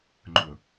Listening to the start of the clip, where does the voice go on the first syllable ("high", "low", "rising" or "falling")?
low